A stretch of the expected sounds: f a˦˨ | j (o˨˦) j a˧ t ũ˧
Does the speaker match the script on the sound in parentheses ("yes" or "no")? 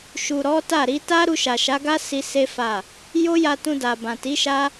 no